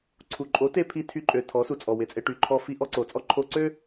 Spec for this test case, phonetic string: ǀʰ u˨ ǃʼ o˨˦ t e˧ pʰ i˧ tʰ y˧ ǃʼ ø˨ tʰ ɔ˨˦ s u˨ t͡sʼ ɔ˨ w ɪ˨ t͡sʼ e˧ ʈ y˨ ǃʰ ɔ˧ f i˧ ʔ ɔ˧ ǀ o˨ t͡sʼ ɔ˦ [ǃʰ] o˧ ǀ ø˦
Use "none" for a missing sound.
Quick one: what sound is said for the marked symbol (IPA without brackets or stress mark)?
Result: ǃʰ